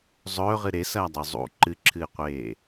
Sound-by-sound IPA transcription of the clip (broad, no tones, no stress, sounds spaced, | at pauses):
zˤ ɵː ʁ ɨ ɾ e s ɐː dˤ ʉ zˤ ṵ ǃ ɨ ǁʰ ɨː qʷ eː